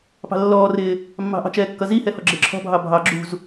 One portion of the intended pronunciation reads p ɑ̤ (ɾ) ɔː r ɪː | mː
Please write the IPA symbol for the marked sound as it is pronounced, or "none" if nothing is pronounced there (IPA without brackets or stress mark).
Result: lː